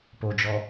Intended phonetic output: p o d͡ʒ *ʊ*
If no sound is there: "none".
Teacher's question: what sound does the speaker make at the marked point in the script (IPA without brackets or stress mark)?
ɔ